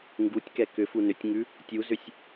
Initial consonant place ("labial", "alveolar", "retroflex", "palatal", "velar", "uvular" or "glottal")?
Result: velar